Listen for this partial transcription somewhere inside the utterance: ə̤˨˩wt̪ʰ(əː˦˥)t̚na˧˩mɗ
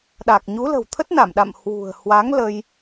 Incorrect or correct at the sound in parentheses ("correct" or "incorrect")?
incorrect